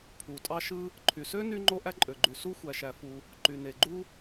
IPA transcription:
pʰ u˩ tʼ ɑ˥ ʃ ɯ˥ | ǃʰ y˩ s ø˥ n y˥ ŋ͡ǃ o˥ ʔ æ˥ ǃʼ ø˩ ɡ͡ǃ y˩ s u˥ xʷ æ˩ ʃ æ˩ f u˩ | ǃ y˩ n e˩ ɡ͡ǃ u˥

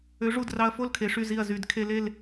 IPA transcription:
ø˨˥ ʐ u˧˩ d r ɑ˧ ɐ̯ f o˥˨ l kʰ e˩˧ ʂ y˧˩ z i˧˩ ɐ̯ z y˧˩˧ d kʰ e˧ l e˥˨ l

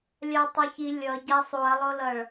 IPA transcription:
lʲ a ɐ̯ tˤ ɛ ç i lʲ ʌ ɟ a sˤ u ɐ̯ lˠ o l ʌ ɭ

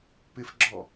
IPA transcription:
p ɪ f ɡ͡ǁ ɔ

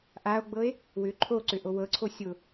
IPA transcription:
ʔ a o̯ ɡ͡b ɤ e̯ | w ʏ ǃʰ o ǀ ʏ ʔ o w ɤ ǀʰ o sʲ ʊ

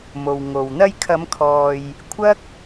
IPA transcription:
m o˨ w ŋ o˨ w n̪ ɐ˧ j kʰ ɐ˨˧ m kʰ ɔː˨ j | kʷʰ ɐ˥ k̚

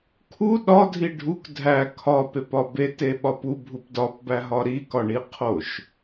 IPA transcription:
kʰ u ɗ ɒ dʱ i ɖʱ u k dʱ æ kʰ ɒ p e p ɒ b e t e ɓ ɒ p u bʱ u p d ɒ p b æ ɦ ɒ ɾ i k ɒ ɳ i qʰ o ʃ

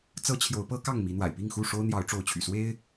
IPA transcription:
t͡s ɤ˦ t͡ɕʰ j o˨˦ ʊ̯ p ɤ˦ k ɑ˥˨ ŋ m i˨˦ n̪ w a̰˨˩ ɪ̯ p i˥˨ ŋ x u˥˨ ʂ o˦ ʊ̯ n̪ j ɑ˨˦ ʊ̯ ʈ͡ʂ o˨˦ ʊ̯ t͡ɕʰ y̰˨˩ s w e˦ ɪ̯

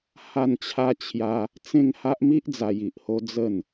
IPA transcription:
h a˥˧ n t͡ɕʰ a˦ t͡ɕʰ j a˦ | t͡s ẽ˥˧ ŋ h a˦ ʔ m i˦ ʔ d͡z a˧ j i˨ ʔ h o˦ d͡z ə˥˧ n

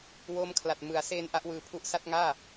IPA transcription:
w oː˦˥ m kʰ l a˨˩ t̚ m ɯ˨˩ a̯ s eː˧ n ʔ a˦˥ ʔ w ɯː˧ pʰ u˦˥ ʔ s a˥˩ t̚ ŋ aː˥˩

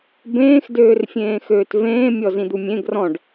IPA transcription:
b ẽː x d øː r fʲ ẽː x øː t v ẽː mʲ ɔ z ĩ d̪ u mʲ ẽ ɡ r ɔ̃ ɖ

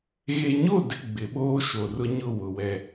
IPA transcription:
ɣ e˨ ɲ o˦˨ d ɪ˦ ɡ͡b ɪ˨˦ ɓ oː˦ ʃ o˨ r ʊ˦ ɲ ʊ˦˨ w ʊ˨ w ɛ˦

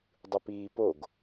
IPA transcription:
dˤ ɯ p iː p o ɡ

